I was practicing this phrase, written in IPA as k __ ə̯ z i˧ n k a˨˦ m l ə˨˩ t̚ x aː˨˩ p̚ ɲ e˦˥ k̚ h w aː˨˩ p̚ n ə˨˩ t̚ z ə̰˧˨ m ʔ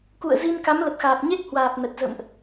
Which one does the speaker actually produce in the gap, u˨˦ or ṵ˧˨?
ṵ˧˨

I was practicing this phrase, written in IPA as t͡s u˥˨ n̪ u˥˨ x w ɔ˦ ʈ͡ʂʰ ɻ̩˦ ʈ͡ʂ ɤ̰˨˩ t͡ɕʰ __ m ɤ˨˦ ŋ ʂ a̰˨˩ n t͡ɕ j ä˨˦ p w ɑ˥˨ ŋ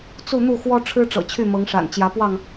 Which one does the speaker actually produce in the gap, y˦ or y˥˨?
y˥˨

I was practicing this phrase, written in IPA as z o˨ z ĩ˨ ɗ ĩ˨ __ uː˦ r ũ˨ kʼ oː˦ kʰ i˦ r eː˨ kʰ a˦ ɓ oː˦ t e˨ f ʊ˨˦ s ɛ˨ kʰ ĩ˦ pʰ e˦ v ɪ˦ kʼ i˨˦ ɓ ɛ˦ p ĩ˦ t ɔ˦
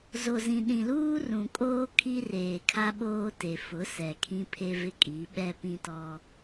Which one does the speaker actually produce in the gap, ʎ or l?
l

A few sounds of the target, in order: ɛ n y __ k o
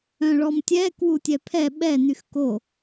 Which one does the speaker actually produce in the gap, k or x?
x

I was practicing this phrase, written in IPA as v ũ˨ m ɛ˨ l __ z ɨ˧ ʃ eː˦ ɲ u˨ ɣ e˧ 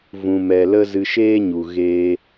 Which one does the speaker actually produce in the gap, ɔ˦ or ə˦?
ə˦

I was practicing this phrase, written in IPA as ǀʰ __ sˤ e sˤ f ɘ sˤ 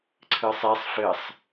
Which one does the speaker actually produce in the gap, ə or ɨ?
ɨ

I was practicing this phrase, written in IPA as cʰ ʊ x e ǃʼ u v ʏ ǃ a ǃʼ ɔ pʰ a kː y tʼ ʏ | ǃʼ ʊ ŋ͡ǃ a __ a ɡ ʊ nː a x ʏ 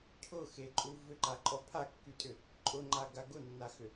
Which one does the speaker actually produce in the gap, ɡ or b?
ɡ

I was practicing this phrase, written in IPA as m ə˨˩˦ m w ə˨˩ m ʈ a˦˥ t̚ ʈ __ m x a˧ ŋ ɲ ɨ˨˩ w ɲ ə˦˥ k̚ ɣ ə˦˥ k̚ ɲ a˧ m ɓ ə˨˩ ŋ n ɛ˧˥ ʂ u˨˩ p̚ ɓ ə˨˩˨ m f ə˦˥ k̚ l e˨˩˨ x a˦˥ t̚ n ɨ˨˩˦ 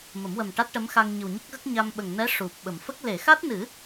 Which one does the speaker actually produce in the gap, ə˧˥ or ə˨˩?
ə˧˥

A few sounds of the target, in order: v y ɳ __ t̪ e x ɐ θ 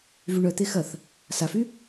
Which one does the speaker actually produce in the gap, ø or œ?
œ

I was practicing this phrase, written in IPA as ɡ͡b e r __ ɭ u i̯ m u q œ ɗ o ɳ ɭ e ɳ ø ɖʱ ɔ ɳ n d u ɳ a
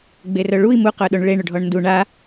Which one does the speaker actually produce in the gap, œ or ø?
œ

